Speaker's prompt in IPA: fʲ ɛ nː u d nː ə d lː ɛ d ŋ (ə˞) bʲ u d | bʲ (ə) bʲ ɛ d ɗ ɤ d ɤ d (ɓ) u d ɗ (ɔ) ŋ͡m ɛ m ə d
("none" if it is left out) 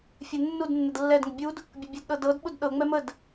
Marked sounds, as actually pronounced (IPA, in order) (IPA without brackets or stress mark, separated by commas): ə, ə, ɓ, ɤ